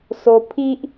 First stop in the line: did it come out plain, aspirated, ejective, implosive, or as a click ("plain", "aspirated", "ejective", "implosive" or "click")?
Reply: aspirated